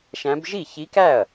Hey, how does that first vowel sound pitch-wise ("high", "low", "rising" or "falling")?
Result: rising